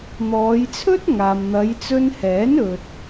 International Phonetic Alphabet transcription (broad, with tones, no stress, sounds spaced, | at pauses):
n̪ ɔː˨˧ j t͡sʰ ɵ˥ t̚ ŋ aː˨ m n̪ ɐ˨˧ j t͡s ɵ˧ n h ɛː˨˥ n ɵ˨ t̚